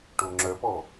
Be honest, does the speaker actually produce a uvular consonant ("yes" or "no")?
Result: no